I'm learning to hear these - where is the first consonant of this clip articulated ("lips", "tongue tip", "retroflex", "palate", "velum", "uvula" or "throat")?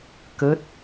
velum